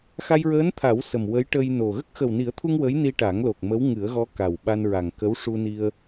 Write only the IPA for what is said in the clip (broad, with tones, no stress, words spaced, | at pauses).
xa˧jɹəː˧˥nt̪ʰa˨˩˦w sə˨˩mwə˧˥j ʈə˧jno˨˩ ɣə˦˥k̚xə˨˩wni˨˩˦ə̯t̪ʰu˧ŋ wə˧˥jni˧ʈa˨˩˦ŋ lo˨˩k̚mə˧˥w ŋɨ˨˩˦ə̯ɣɔ˧˥ ka˨˩wɓa˧nɹa˨˩ŋ kə˧˥wʂu˧ni˧ə̯